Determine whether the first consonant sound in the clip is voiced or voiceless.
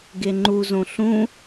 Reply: voiced